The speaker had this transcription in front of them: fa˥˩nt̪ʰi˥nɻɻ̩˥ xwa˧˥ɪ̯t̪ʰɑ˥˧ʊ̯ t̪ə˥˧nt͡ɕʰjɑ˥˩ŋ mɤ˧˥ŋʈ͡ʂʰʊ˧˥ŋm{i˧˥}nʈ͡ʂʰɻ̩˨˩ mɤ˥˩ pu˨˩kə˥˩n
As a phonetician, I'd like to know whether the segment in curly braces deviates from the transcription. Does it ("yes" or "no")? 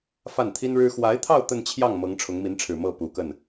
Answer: no